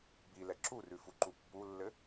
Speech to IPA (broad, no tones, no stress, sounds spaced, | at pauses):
b i l ɛ ǁ u r ʉ f u ǃ u pː u lː ɘ